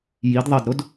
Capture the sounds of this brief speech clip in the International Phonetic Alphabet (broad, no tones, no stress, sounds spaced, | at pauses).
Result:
j i d ðˤ ɐ d ɾ o d